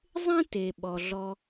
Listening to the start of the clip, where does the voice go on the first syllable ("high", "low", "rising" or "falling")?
high